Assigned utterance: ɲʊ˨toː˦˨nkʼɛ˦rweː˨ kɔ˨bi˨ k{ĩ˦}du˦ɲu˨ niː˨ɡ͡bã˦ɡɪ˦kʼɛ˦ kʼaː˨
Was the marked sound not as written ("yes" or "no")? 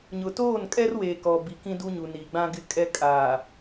no